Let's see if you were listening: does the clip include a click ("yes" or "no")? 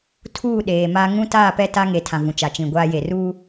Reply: no